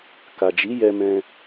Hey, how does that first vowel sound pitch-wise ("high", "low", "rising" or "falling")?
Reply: low